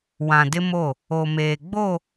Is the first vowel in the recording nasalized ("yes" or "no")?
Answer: yes